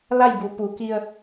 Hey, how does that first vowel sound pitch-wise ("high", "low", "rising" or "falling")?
falling